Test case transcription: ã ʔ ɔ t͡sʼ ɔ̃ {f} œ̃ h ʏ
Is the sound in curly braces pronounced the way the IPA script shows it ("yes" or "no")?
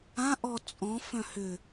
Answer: yes